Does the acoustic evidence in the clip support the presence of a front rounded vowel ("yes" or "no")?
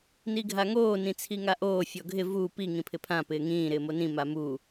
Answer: no